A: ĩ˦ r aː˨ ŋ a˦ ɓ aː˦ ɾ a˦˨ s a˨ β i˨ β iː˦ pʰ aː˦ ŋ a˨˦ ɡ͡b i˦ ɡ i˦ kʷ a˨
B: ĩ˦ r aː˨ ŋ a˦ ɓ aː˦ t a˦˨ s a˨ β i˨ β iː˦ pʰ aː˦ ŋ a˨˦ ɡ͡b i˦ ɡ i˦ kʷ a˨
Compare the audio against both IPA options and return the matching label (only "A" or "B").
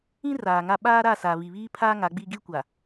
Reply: A